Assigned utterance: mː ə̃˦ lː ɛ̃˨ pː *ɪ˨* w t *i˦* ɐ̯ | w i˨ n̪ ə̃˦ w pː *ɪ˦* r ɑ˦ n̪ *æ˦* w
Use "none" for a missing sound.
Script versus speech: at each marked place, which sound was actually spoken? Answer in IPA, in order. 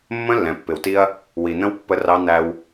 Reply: ɪ˨, i˦, ə˦, æ˦

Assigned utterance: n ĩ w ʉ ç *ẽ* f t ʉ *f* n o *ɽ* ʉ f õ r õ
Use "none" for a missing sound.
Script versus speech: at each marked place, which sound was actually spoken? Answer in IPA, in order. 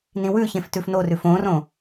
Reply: ẽ, f, r

